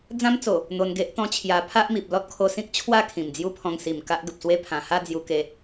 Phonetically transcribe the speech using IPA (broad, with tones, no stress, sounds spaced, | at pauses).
d͡z ã˦ m t͡s o˨˩ | n̪ o˧ n ɡ e˦ ʔ t̪ ɔ̃˦ t͡ɕʰ j a˧ pʰ a˦ ʔ m i˨ p̚ l ɔ˦ t̚ kʰ o˧ s ĩ˦ k̚ t͡ɕʰ w a˥˧ kʰ ĩ˨˩ m d͡z j u˦ pʰ ɔ̃˧ ŋ s i˨˩ m k a˦ ʔ ɡ ə˨ p̚ s w e˧ pʰ ã˨˩ h a˥˧ d͡z j u˧ k e˧